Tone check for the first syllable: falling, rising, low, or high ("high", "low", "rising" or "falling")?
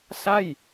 falling